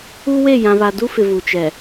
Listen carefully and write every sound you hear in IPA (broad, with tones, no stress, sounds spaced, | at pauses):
u˦ w e˦˨ j ã˨ β a˨ d u˦ f ɪ˨ v u˨ t͡ʃ ɛ˨